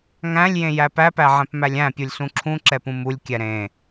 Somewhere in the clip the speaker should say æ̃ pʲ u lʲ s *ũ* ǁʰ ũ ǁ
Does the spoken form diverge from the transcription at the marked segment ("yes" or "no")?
no